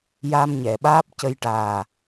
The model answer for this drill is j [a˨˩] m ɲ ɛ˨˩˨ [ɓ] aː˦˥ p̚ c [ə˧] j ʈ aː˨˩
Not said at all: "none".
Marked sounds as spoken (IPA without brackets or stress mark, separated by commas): a˧, ɓ, ə˧